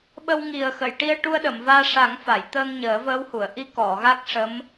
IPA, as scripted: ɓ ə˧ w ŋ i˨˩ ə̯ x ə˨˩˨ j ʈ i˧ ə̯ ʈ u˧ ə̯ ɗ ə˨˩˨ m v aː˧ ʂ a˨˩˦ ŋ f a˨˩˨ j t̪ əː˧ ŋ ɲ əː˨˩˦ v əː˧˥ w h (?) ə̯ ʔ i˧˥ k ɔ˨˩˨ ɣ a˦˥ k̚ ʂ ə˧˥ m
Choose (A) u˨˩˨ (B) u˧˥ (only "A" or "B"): A